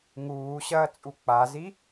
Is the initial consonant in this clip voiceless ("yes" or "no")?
no